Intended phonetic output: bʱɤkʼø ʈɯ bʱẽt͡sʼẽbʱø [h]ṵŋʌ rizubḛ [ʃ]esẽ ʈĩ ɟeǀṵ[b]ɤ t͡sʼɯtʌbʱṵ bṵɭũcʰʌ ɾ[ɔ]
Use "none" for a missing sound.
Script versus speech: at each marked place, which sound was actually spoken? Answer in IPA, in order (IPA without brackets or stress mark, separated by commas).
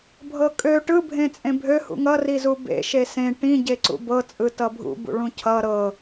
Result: h, ʃ, b, ɤ